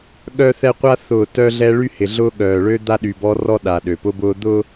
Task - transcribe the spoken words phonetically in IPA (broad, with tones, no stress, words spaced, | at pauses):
ɠœ˦θɛ˦qʷa˦ θʊː˨ tœ˦ɮɛ˦ ɭy˦hɪ˨ɮʊː˦ ɠœː˨ɭø˦ d̪a˦ɗy˨bɔ˦rɔ˦ ɗa˨ɗø˨pʊ˦bʊː˦ d̪ʊː˦